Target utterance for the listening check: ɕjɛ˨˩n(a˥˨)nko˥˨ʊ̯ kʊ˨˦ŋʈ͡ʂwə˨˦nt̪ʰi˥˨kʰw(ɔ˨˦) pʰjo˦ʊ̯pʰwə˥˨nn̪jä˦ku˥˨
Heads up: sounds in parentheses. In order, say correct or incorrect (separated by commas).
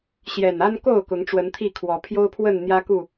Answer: incorrect, correct